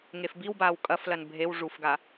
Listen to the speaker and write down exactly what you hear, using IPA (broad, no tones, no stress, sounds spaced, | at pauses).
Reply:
ŋ e f b i w b aː w kʼ ɐ f l ɐ n bʱ e w ʐ u f ɡ a